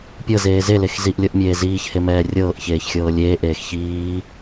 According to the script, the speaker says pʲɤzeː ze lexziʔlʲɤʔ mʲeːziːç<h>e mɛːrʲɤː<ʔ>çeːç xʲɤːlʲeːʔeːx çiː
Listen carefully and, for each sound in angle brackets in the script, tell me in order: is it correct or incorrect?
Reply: correct, correct

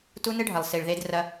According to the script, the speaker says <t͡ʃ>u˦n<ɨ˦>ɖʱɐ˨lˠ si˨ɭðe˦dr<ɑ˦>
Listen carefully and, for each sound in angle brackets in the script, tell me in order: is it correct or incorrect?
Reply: incorrect: t, correct, incorrect: ɐ˦

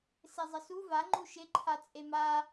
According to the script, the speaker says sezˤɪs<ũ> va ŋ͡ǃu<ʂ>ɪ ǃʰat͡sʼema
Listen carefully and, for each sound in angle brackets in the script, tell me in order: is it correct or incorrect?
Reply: incorrect: u, incorrect: ʃ

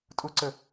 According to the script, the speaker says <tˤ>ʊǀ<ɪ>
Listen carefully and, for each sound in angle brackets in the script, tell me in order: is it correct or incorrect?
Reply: incorrect: tʼ, incorrect: ə

